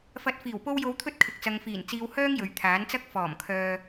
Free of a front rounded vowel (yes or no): no